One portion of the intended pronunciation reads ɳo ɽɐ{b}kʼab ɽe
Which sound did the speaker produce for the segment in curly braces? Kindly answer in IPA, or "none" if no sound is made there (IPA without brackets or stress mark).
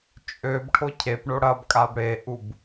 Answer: b